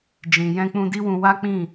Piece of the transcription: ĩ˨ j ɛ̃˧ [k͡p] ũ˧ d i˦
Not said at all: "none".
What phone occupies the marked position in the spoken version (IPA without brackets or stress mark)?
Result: k͡p